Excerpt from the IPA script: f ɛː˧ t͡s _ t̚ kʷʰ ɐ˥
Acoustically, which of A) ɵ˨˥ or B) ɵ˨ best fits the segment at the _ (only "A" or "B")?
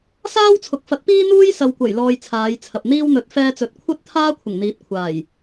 B